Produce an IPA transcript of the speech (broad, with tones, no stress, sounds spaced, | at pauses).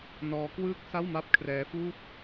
n ɔː˦˥ k w ɯː˥˩ k̚ s a˥˩ w m a˥˩ p̚ kʰ r ɛː˦˥ f uː˥˩ t̚